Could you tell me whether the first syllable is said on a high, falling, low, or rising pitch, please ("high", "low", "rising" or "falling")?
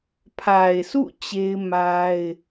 low